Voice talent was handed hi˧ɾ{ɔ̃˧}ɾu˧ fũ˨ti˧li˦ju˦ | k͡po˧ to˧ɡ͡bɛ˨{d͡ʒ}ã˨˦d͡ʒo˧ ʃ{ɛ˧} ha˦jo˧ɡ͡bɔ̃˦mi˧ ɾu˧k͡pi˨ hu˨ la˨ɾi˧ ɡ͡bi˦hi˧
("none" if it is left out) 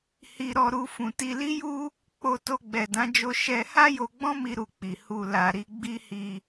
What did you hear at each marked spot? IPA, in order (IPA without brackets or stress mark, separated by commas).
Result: ɔ˧, d, ɛ˧